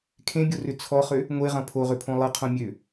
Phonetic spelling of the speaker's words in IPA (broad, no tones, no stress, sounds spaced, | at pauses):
kʰ ẽ bʲ o r ʏ t͡sʰ ɔ χ ø | ŋʷ e ʁ ɐ̃ pʰ o ʁ ʏ pʰ õ lˠ ɐ qʰ õ mʲ ø